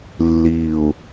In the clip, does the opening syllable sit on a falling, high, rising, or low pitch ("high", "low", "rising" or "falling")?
low